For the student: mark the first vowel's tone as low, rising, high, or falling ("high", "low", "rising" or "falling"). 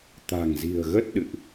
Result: low